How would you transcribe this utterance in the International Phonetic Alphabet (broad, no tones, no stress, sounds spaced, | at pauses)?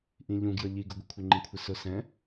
ʔ ĩ ʎ ũ ɡ j ʌ ʎ i ɡ ʊ ɡʷ ɪ kʷʰ ə ŋ͡ǃ ĩ kʷʰ ɪ s ʊ s ɛ̃